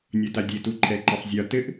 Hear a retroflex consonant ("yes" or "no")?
no